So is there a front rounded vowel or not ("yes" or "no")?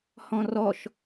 no